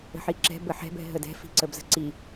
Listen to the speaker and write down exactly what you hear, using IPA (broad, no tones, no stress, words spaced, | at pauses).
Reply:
ə̤ħiǁɛ̤ bəħɛ̤bɛ̤ ɦədɛ̤ fi̤ǀəbzə̤ǀi